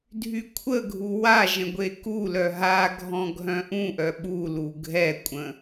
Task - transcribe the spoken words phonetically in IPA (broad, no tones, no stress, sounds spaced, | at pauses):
dʱ y kʷʰ ə ɡʱ u w a ʒ ə̃ ɡʷ e k u l œ ɦ a ɡʱ ɔ̃ ɡʱ œ̃ ʔ ũ ʔ œ ɓ u l u ɡʱ ɛ kʷʼ ə̃